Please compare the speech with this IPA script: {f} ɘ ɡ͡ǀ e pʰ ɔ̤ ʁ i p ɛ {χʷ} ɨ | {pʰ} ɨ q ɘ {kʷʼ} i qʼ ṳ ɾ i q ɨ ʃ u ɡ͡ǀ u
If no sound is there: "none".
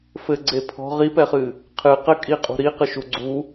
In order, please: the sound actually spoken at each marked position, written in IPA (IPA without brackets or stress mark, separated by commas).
f, χ, qʰ, kʼ